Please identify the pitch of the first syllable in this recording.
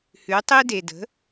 rising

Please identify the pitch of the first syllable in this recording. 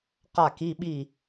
falling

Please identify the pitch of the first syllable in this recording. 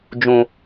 low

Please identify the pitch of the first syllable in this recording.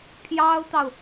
high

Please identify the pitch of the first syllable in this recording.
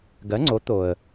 rising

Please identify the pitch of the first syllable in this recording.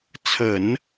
low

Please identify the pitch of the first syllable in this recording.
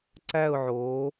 falling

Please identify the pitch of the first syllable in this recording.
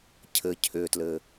low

